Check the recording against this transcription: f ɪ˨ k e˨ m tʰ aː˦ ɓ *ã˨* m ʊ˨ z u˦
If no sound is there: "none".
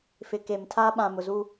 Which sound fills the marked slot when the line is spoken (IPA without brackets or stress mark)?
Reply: ã˨